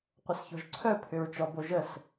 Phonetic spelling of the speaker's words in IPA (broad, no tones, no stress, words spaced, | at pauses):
qʷəsçɔ̤ʒǀʰœ pʰʏɹt͡ʃɔboʒəs